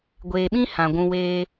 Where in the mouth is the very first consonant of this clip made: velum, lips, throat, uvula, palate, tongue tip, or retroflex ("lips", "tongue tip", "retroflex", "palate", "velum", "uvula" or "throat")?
velum